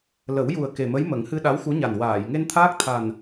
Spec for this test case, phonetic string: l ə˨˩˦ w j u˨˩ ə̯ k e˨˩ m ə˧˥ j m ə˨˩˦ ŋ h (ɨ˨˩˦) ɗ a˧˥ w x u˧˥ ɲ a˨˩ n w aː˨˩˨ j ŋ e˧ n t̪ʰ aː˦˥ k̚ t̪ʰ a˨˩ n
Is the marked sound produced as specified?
no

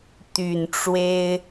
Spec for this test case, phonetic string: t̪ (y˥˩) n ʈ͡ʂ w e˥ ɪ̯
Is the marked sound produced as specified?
no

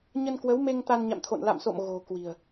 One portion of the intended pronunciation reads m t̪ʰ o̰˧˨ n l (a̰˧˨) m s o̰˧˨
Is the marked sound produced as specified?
yes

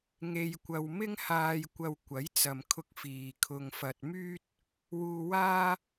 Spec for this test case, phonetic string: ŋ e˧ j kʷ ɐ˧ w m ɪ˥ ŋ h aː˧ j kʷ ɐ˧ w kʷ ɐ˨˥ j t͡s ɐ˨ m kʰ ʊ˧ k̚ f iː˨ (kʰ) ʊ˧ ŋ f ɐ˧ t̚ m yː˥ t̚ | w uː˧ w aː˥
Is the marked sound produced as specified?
yes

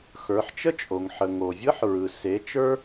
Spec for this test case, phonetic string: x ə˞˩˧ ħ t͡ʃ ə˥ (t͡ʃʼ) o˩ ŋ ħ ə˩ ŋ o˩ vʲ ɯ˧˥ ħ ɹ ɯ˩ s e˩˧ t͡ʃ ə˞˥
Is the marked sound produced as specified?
yes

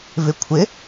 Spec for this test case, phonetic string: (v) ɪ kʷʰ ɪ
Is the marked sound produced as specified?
yes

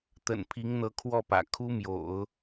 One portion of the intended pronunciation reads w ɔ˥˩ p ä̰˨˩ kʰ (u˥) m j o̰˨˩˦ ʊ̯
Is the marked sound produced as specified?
yes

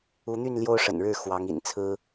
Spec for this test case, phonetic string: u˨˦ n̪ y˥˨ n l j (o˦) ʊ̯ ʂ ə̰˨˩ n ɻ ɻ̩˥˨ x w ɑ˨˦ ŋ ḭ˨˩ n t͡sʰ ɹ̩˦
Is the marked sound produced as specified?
yes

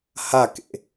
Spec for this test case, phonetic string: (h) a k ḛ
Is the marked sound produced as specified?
yes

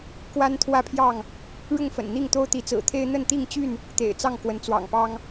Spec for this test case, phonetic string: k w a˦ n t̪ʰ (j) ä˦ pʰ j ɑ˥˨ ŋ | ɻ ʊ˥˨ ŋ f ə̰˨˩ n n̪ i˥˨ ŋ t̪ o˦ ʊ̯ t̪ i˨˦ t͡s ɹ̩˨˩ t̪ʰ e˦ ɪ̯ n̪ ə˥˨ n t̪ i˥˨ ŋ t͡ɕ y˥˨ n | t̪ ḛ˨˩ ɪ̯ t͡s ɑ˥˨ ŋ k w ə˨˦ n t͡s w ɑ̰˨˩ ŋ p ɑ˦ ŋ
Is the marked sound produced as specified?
no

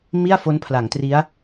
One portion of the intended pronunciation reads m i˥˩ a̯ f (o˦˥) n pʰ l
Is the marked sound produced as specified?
yes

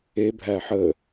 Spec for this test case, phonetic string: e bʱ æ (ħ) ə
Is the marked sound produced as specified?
yes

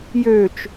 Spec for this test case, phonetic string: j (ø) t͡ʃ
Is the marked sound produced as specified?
yes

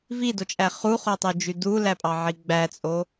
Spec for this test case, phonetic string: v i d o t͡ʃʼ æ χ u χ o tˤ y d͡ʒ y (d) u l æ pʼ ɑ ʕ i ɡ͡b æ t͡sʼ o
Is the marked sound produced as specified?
yes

